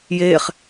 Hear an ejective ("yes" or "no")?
no